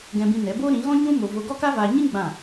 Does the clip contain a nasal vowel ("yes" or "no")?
yes